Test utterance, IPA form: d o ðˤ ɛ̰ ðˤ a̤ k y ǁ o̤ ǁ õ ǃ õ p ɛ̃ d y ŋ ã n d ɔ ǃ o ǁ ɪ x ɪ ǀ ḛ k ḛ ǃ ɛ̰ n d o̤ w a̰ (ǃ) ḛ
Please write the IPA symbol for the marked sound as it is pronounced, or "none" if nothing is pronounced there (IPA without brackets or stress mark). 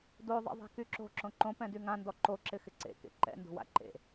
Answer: ǃ